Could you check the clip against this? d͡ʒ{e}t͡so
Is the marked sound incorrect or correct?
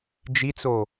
incorrect